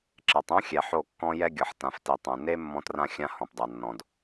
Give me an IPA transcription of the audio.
ǁɛ˨tˤũ˦xʲɛ˨ ħo˦˨kːɔ̃˦ jɛ˦ɡʲɤ˨ħ tã˨fti˨tˤũ˨ ne˦ mːɔ̃˦trã˦xʲã˦ hɔ̃˨pdˤa˨ nːɔ̃˨d

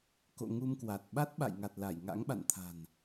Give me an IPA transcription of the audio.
ko̰˧˨ ŋu˧mkwa˨˩t̚ ɓa˦˥t̚ɓa̰˧˨jŋa˨˩t̚ la˧˩jŋa̰˧˥ŋɓa̰˧˨nt̪ʰa̤˨˩n

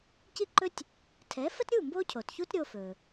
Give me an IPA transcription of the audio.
ci˥ǃɵ˥tʲ | tʰɛ˩˥fə˥tɾʲu˥˩ mbo˥cʰo˩tçu˥tɾʲo˧ fɵ˩

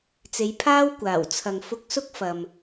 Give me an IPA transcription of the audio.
t͡se˨˧jpʰaː˥wkʷaː˨˩w t͡sʰɐ˨ŋ fʊ˧k̚sʊ˥k̚ fɐ˨m

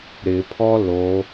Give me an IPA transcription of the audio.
ɾɪpʰɔ lo

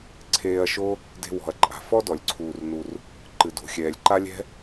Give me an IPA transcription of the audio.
ǀʰeː˧ɐ̯ʃo˥ | de̤˧wɔ̤˩ɐ̯ǃʼa̤˩ fɔ˥dɔ˩lʲǀʰuː˩rnu˩r | ǃɨ˩do̤˩xʲɛː˩lʲǃa˥ lʲɛ̤˥

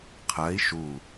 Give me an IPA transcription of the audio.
qʰɜi̯ ʃu

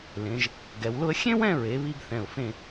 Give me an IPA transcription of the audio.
lẽ˩˧ʒ | ɡɛ˩˧wlʊ˥ə̯ xʲẽ˥wɛ̃˥˧ɹe˩˧ βi˥ɡθɛ̃˧˩ʊ̯fẽ˥˧

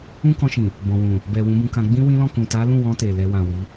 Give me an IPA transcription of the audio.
ũ˦kɔ̃˧ʃĩ˨ | bɔ̃˨wũ˨ | bɛ˨wũ˨˦bũ˧kã˧ ɡ͡bĩ˦wĩ˦lɔ̃˦˨kũ˨ ta˨˦lũ˦˨wɔ̃˧ te˨lɛ˧ wã˨wi˨˦

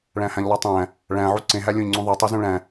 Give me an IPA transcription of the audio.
ɭæ̃hæ̃ʎlˠitˤæ̃ | ɭæ̃ ʕuǀẽ ɦælʲõʎŋ͡ǀũðˤe tˤizũɭæ̃

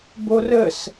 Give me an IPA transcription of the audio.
borəs

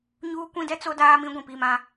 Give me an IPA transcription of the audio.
ɲuː˦kʷĩ˦dɛ˦t͡so˦ daː˦mĩ˦ ɡʷĩ˨pi˦˨mã˦

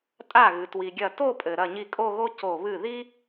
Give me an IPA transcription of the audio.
tʼa˥˩ɣɨ˩ twi˩ɡʲɐ˧˩ to˥˧pʼɘ˩ ɾɐ˧˩ɲi˧˩kʼo˥˧ɣo˥ co˧˩βɨ˥˩ ði˥

